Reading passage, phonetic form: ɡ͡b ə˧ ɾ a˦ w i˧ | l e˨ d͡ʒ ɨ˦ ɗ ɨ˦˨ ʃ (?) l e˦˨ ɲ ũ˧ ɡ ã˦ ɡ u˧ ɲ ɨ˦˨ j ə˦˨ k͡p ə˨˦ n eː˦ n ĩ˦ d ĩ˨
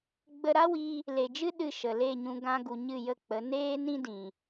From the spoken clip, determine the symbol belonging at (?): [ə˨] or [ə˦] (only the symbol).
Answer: ə˨